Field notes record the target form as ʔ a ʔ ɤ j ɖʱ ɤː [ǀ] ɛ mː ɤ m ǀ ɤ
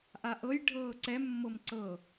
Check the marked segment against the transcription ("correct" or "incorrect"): correct